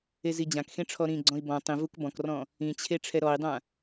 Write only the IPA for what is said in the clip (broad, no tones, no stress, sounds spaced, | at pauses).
e z i d͡ʑ ã k x ẽ ʈ͡ʂʰ ɔ ɾ ĩ ɡ͡ǀ ɔ̃ i̯ b ɔ̃ tˤ ĩ v u k b ɔ̃ k r ɔ̃ | ĩ t͡ɕʰ e ʈ͡ʂʰ ɛ ɾ ɔ i̯ dˤ ã